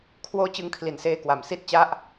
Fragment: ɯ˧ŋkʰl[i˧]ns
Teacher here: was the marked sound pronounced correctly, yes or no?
no